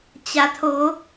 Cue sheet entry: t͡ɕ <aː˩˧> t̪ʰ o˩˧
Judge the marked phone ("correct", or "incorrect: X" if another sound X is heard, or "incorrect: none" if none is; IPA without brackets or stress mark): incorrect: a˩˧